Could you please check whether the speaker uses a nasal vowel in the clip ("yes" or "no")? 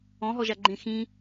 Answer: yes